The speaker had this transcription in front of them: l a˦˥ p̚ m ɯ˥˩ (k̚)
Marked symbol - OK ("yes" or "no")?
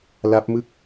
yes